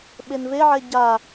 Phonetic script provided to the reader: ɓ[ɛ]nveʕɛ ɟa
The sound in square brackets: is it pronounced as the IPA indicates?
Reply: no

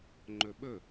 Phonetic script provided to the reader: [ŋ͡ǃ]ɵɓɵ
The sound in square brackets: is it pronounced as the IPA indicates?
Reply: yes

